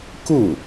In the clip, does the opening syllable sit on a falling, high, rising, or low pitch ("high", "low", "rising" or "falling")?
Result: falling